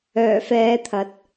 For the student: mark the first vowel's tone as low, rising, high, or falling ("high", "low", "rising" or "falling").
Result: low